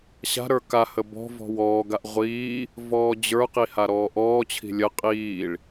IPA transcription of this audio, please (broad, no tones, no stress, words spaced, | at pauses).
ɕa̤ ɾə˞kahə bɔ̤ vɔ̤wɔːɡaʔ ʁʷiː | vɔːd͡ʑə˞qi haɾɔːʔɔːt͡ɕʰi̤ lʲə qʼiːɭ